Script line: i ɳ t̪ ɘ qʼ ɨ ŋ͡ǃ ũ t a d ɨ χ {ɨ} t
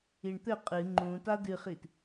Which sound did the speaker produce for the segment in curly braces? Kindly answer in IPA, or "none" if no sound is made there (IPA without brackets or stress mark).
i